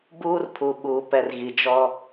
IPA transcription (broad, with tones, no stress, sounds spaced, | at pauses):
b uː˦ r pʰ u˨ ɓ uː˨ p ɛ˨ r ɣ i˨ d͡ʒ ɔ˦